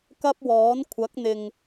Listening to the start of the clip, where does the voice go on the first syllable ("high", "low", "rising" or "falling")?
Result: high